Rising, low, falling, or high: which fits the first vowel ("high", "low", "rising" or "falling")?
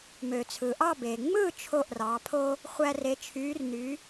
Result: low